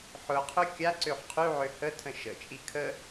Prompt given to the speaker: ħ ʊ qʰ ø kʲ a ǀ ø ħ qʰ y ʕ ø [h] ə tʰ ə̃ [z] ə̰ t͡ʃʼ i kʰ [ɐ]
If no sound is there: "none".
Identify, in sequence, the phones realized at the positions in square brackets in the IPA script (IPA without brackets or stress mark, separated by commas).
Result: h, ʃ, ə